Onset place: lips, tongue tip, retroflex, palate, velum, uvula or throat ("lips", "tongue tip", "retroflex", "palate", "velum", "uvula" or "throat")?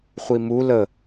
uvula